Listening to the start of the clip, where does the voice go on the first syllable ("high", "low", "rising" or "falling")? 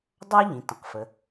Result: high